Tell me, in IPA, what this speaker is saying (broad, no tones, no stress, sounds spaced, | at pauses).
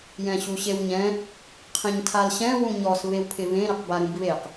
j ɛ̃ ɕ u ɕ e w ɲ ɛ̃ | qʰ ĩ ɲ tʰ a l ɕ ɛ̃ w ũ ɲ ɔ s β e w pʰ ɪ β ẽ ɾ ɪ q b a ɾ ũ b β e q